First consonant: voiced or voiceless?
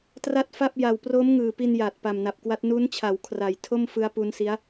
voiceless